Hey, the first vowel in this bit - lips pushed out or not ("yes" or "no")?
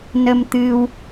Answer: no